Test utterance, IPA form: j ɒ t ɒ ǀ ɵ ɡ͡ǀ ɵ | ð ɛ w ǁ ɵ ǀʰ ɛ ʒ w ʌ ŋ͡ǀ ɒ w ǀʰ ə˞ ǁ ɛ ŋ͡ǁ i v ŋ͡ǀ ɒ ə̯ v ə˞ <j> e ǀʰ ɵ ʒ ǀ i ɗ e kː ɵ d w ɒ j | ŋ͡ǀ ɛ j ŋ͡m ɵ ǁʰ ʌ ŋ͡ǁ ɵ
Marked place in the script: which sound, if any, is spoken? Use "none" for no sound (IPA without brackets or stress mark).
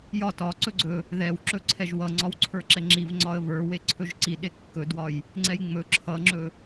w